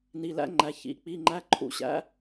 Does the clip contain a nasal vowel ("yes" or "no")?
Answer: no